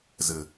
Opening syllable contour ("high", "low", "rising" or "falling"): low